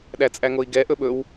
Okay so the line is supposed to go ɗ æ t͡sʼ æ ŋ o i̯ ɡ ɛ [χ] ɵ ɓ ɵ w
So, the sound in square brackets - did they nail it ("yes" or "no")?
no